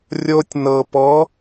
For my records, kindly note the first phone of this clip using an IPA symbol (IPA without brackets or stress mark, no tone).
rʲ